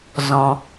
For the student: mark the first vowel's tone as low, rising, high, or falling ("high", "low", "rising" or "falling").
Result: low